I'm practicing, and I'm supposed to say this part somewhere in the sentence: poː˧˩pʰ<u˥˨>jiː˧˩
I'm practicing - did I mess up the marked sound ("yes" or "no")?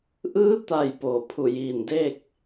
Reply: yes